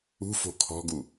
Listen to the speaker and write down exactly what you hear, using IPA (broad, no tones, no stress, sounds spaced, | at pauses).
ṳ f o̤ kʰ ɔ̤ ɡ u